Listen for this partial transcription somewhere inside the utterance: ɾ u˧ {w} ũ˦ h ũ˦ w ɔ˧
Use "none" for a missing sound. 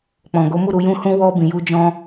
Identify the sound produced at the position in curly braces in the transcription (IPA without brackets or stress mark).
j